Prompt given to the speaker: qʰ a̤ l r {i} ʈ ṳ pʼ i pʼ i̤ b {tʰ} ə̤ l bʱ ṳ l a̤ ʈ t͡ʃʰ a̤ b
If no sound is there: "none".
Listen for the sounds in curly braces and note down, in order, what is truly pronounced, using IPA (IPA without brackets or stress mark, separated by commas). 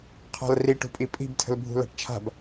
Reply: i, tʰ